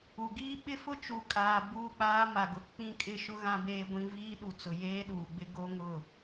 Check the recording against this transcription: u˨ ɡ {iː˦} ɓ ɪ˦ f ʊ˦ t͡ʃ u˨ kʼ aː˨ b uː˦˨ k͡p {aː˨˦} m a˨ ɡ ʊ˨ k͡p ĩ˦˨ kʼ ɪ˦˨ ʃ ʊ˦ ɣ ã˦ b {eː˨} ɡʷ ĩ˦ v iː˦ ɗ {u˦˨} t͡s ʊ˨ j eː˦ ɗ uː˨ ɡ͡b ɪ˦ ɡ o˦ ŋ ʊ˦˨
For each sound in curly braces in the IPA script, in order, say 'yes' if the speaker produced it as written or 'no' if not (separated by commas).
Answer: yes, no, no, no